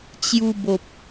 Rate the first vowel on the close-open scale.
close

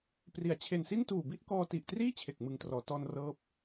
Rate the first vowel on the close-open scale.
close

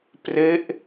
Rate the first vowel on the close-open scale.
mid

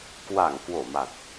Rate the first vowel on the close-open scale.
open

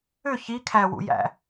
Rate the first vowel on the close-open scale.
close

